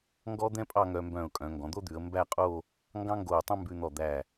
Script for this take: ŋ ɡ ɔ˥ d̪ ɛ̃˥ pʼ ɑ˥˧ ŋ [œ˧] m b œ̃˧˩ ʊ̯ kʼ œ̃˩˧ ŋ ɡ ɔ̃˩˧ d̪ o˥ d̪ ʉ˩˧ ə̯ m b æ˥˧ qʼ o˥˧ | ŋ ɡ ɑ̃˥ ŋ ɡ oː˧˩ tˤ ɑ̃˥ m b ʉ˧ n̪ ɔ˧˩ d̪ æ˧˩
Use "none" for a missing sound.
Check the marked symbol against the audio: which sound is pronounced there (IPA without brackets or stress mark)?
œ˧